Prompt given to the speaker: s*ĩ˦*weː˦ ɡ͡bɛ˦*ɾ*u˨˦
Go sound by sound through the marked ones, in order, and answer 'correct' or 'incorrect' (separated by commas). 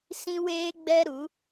correct, correct